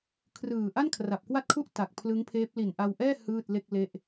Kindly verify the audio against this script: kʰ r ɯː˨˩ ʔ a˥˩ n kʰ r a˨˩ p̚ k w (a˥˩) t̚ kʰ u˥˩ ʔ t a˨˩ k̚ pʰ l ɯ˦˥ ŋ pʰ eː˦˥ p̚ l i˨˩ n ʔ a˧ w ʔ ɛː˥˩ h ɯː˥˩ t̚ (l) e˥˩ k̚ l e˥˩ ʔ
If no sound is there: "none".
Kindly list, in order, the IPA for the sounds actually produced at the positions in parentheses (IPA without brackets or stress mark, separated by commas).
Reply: a˥˩, l